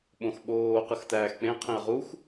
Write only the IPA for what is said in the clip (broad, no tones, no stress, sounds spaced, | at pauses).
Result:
ɓ õ x ɓ oː q ɯ x t æː x k͡p ẽ qʰ ĩ ə̯ ʁ u x